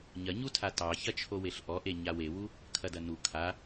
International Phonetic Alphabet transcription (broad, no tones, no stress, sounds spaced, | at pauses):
ɲ ɐ ɲ u tʰ a t ɑ ç ɐ t͡ʃʰ o w e ɬ ʔ ɔ ʔ e ɲ a w e w u | kʰ ɐ d ɐ n u kʰ a